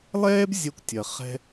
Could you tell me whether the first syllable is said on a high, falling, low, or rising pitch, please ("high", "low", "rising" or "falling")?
high